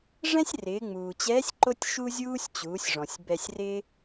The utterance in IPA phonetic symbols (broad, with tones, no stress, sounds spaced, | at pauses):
ʐ ɛ̃˥ sʲ r ɪː˩˧ ŋ͡m uː˩ t͡ɕ ɛː˧˥ sʲ ǃ o˥ tʲ ʃ u˥ zʲ uː˥ sʲ t͡ɕ uː˩˧ sʲ ʐ ɔ̃˩ sʲ b ɛ˧ sʲ r ɪː˥